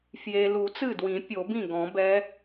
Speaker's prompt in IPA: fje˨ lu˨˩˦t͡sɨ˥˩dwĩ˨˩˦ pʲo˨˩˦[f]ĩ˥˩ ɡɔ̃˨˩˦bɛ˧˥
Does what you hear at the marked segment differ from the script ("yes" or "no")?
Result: yes